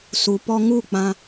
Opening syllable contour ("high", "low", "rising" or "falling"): low